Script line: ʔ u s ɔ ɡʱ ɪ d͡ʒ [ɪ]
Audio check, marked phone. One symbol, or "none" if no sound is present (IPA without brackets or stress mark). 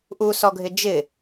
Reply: ɪ